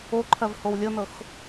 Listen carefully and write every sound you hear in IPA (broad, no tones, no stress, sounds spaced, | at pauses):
o ǃʰ ɜ v h o w lʲ ɤ n ɤ x